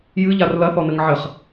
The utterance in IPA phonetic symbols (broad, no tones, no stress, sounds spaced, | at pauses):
j ɨ ʎ a r l ɐ θ ɔ n ɘ ŋ ʕ ɘ χ